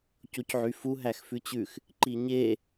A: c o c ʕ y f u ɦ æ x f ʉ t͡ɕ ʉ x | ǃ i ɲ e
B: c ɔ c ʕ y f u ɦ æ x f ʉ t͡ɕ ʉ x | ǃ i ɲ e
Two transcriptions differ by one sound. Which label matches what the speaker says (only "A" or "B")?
A